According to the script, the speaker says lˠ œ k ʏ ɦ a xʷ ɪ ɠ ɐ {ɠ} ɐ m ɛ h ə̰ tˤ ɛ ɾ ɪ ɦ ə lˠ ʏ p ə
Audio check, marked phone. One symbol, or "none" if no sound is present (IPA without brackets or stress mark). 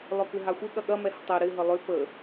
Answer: ɠ